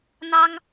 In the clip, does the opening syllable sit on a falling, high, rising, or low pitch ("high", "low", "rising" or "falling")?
high